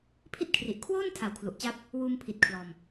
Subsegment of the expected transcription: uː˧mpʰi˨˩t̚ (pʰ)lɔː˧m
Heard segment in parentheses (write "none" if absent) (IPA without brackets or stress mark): kʰ